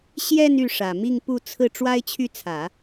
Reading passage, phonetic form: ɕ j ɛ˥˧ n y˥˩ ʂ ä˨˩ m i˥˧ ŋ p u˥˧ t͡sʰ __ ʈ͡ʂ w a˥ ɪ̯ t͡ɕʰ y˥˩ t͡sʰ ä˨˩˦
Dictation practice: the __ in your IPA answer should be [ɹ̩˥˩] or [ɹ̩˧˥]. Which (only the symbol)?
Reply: ɹ̩˥˩